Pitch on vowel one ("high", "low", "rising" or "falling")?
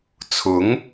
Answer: rising